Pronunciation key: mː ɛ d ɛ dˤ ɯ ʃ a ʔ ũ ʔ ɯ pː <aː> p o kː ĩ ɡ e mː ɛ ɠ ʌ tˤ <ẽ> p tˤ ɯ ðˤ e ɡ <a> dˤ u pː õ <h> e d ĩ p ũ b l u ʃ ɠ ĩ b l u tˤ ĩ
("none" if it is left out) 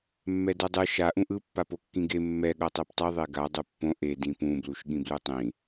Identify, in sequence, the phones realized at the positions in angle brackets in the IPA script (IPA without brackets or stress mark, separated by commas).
a, e, a, ʔ